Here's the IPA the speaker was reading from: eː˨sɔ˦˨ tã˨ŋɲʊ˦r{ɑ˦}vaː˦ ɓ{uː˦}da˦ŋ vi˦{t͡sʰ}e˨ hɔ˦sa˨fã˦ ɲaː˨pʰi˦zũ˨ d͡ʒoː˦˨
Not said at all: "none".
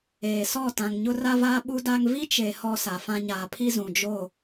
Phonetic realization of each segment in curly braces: a˦, u˦, t͡ʃ

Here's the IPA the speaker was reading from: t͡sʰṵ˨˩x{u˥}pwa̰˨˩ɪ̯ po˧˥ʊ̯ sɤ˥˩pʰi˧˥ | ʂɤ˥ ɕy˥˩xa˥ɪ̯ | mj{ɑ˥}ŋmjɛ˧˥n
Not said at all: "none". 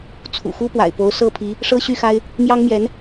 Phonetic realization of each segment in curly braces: u˥, ɑ˥

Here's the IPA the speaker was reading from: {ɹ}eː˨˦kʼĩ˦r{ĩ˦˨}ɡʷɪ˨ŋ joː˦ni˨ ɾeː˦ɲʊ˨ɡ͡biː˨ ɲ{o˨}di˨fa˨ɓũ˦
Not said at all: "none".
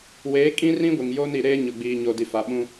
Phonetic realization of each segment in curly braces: w, ĩ˦, o˨

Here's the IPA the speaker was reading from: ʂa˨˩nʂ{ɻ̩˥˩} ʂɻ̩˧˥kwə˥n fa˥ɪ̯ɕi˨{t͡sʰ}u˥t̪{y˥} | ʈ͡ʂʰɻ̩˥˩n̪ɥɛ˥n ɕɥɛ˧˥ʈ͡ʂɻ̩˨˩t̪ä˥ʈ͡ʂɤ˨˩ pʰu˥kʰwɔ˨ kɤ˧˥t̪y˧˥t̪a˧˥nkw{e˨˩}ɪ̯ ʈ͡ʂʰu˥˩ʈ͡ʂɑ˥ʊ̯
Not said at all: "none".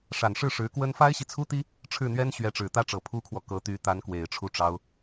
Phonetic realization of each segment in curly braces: ɻ̩˥˩, t͡sʰ, i˥, e˨˩

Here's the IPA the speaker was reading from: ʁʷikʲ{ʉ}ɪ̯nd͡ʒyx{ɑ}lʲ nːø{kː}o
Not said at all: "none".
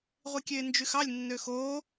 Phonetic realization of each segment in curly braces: ø, ɑ, x

